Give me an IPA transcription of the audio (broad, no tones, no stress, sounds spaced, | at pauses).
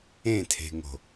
ẽ tʰ e̤ ŋ o̤